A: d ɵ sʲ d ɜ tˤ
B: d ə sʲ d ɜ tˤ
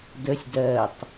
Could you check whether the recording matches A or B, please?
B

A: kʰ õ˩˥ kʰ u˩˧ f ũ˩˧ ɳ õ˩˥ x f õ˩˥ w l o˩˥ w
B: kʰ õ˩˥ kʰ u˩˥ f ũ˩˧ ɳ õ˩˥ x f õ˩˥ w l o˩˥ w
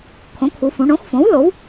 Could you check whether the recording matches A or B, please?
A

